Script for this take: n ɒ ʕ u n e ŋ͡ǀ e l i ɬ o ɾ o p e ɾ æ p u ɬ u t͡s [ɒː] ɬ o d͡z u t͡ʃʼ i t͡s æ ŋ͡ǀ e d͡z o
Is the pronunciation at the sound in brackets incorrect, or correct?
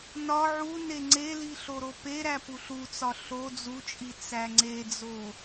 incorrect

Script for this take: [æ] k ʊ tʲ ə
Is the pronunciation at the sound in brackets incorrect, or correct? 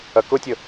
incorrect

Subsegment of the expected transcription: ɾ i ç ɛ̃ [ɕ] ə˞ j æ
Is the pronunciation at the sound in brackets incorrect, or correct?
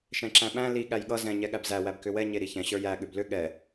correct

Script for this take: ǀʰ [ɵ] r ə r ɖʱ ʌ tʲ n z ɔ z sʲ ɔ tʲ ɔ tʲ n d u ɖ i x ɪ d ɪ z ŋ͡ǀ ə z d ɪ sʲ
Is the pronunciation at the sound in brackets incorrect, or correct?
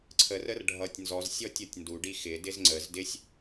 incorrect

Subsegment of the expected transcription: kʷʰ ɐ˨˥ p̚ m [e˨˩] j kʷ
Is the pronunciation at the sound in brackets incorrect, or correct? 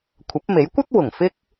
incorrect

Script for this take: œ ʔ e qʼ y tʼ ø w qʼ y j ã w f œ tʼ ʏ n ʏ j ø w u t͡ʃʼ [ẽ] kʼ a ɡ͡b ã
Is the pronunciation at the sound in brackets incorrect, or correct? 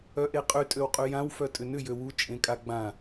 correct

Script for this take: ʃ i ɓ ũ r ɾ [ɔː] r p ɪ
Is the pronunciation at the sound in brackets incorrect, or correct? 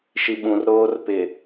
incorrect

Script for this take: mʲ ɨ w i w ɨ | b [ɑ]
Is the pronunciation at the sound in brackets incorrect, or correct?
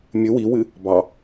correct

